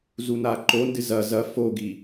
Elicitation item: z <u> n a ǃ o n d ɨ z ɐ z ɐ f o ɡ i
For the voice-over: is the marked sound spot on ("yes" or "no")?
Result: yes